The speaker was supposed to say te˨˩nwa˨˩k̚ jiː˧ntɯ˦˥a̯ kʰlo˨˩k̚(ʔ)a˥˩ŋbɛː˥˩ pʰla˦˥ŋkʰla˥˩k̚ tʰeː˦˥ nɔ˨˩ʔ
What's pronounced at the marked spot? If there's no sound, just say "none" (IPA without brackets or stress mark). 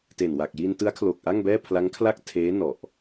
ʔ